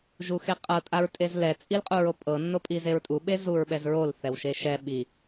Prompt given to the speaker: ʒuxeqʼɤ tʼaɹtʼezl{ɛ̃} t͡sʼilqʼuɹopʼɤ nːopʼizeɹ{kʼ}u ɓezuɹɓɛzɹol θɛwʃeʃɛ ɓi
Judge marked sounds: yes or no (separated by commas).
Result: no, no